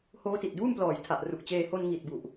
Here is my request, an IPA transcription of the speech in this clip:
h oː˦˥ t i˨˩ t̚ d uː˥˩ m p l ɔː˨˩ j tʰ a˨˩ ʔ r u˨˩ k̚ t͡ɕ eː˧ h o˧ n ŋ i˨˩ t̚ b u˨˩ ʔ

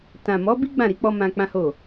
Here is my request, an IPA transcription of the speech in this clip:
t ã˨ m ɔ˨˦ b i˦ ɡ͡b ã˦˨ ɾ i˨˦ k͡p ɔ˦ m ã˧ k͡p ã˦ h o˦˨

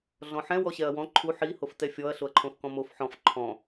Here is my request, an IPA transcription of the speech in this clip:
ɮ ɔ̃ ħ ɛ̃ w ɔ ɕ ɛ ɐ̯ w ɔ̃ ǃʰ u ħ i h o f t ɛ fʲ ɔ ɐ̯ ɬ o ɐ̯ ǃʰ õ f k ɔ̃ m o f ħ ɔ̃ f ǃʰ ɔ̃

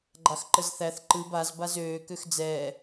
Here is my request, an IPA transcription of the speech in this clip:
ɡ͡ǃ ɑ x ǃ ə z θ æ θ ǃ ɯ b a z b a z øː k ø x d͡z ɛː

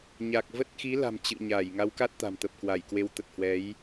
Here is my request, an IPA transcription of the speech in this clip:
ɲ a˨˩ k̚ v ə˦˥ t̚ x i˨˦ l a̤˨˩ m t͡ɕ ɨ̰˧˨ ɲ a˧˩ j ŋ a˨˦ w k a˦˥ t̚ t̪ a̤˨˩ m t̪ ə˨˩ p̚ k w a˧˩ j k w e˨˦ w t̪ ə˨˩ t̚ h w ɛ˨˦ j

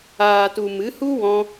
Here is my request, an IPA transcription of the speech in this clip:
aː˨ t u˨ m ɨ˨˦ h u˦ w ɔ̃˧

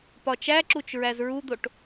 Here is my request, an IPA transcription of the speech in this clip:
p ɒ t͡ʃ æ ǁ u t͡ʃ ɹ æ z ɹ u d̪ o ʈ

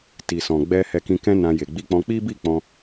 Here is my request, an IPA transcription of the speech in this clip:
t i˨ s ɔ̃˨ ɡ͡b ɛ˧ h ɛ˧ k ĩ˧ k ɛ̃˦ n ã˧ j e˨ ɡ͡b i˧ k͡p ɔ̃˧ k͡p i˦ b i˦˨ k͡p ɔ̃˧

